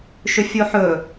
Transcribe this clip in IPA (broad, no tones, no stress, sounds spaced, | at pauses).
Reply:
ʃ ʏ fʲ o ħ ɵ